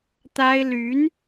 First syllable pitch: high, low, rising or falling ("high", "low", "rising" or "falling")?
high